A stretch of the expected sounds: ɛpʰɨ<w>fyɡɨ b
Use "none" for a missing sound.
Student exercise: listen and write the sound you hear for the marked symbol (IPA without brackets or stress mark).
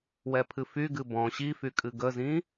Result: none